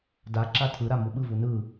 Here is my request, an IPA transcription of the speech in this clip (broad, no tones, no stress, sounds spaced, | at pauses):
d a ǁ a tʰ ɯ ɾ a m u ɓ ɯ v u n ɯ